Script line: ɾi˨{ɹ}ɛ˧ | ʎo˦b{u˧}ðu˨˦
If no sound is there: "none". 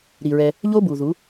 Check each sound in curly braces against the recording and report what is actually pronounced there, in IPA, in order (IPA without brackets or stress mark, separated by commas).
ɹ, u˨